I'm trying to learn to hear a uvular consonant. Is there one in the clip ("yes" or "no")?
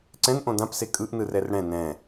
no